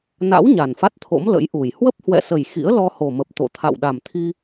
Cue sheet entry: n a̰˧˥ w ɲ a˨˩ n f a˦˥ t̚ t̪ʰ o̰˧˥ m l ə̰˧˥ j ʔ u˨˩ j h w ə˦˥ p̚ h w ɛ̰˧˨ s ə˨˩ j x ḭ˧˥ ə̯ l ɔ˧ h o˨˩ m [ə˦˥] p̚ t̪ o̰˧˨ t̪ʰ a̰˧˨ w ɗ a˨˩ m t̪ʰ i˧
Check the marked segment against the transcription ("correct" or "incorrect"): incorrect